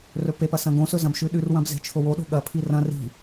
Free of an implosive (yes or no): no